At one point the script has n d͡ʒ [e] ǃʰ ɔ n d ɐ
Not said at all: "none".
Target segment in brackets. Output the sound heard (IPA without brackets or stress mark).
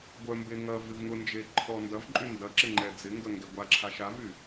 e